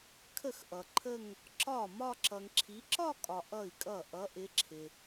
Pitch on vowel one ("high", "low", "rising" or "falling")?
falling